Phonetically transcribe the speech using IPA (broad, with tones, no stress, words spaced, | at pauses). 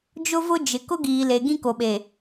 d͡ʒʊ˦vʊ˦d͡ʒɪ˨ kʊ˦ɡiː˨ le˨ɡĩ˦ko˨ɓe˨